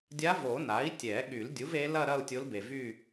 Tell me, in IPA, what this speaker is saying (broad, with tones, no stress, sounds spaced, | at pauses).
dʲ a˧˥ v o˨˩˦ n a˩˥ i̯ tʲ ɛ˨˩˦ ɠ y˨˩˦ l dʲ u˩˥ v e˧˥ l ɐ˥˧ ɾ ɐ˥˧ u̯ tʲ o˧˥ l b e˨ v y˥˧